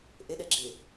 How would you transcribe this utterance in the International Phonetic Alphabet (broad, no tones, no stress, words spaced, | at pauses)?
ʔeɗɛ ɡ͡ǁɪ